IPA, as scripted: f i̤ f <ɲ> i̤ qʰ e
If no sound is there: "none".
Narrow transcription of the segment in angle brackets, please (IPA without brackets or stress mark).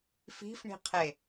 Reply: ɳ